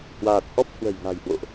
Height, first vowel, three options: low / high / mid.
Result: low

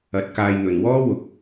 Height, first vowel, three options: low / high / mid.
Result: low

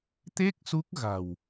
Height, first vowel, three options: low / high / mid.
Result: mid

